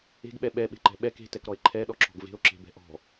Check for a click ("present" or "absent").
present